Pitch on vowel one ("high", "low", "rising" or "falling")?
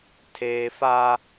high